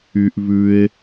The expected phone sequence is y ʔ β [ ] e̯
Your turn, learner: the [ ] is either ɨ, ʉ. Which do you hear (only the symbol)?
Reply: ʉ